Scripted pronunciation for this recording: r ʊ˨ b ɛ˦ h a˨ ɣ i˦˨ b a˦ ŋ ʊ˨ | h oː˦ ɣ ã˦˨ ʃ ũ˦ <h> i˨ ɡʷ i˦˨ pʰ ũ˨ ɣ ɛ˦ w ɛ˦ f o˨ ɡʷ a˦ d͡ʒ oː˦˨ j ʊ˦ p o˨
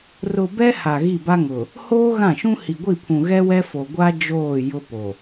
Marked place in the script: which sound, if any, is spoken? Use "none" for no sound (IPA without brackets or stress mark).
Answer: h